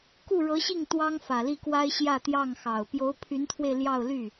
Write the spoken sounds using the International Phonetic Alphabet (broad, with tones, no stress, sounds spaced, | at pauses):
k u˥˩ ɻ ɤ˧˥ ɕ i˥˩ ŋ t̪ w ɑ˥ ŋ f ä˨˩ l i˥˩ k w a˥ ɪ̯ ɕ j ä˥˧ t̪ j ɑ˥˩ ŋ x ɑ˨˩ ʊ̯ p j o˧˥ ʊ̯ pʰ y˧˥ n t̪ʰ w e˧ ɪ̯ l j ɑ˥˧ ʊ̯ l y˥˩